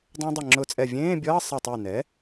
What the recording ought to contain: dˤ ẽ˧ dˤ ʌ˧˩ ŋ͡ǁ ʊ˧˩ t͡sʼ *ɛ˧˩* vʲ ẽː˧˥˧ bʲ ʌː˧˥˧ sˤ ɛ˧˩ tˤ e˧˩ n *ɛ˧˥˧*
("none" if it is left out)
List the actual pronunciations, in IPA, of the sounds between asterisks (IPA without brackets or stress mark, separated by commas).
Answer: ɛ˧˩, ɛ˩˥